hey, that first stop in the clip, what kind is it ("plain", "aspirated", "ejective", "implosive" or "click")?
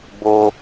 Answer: plain